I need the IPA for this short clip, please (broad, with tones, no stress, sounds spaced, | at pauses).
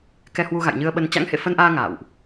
k ɛ˧ h w u˧ ɣ a̰˧˨ j ɲ ɨ˧ ə̯ ɓ ə˧ n t͡ɕ a̰˧˥ ŋ h ḛ˧˨ f ə˧ n ʔ aː˧ ŋ a̰ː˧˨ w ʔ